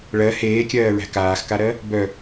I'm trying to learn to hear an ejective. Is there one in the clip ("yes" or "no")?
no